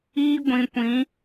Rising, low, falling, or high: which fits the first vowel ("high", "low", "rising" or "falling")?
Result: high